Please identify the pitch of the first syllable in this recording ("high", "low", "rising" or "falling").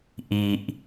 low